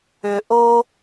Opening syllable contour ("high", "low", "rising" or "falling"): low